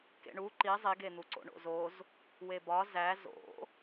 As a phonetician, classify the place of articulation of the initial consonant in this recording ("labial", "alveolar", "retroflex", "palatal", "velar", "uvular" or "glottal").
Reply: velar